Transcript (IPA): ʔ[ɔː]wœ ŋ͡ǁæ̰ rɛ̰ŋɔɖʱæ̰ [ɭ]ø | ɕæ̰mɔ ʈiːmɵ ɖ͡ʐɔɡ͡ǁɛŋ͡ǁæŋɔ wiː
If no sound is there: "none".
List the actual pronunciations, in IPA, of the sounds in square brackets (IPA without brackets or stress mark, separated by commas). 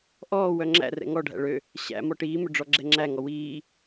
ɔː, ɭ